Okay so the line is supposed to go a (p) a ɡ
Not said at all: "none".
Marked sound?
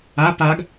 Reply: p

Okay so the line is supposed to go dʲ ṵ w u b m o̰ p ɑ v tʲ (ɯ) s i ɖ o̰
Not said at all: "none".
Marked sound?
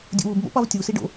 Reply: u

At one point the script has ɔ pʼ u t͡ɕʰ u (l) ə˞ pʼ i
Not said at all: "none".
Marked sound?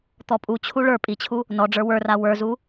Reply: ɭ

